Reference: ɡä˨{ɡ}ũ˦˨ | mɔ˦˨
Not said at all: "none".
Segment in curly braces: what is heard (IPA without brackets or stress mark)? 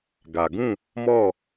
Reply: ɡ